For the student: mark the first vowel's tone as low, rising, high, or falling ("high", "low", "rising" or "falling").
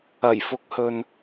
low